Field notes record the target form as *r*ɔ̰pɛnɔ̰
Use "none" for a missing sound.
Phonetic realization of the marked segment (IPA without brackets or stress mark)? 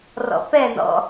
r